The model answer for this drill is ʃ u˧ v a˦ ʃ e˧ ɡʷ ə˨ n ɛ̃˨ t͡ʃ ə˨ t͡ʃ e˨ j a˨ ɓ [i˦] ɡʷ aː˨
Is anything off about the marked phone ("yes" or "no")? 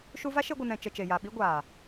no